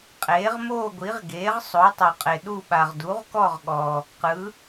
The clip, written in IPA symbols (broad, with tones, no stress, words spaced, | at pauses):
qʼeː˩˥ʁmoː˥˨ɡʷi˩˥ʁɡeː˩˥ʁ sˤo˩˥ tˤo˨qʼe˨ɗu˥˨ɓa˨ʁ du˩˥ʁkɔ˥˨ʁɠɔ˨ | qɯ˩˥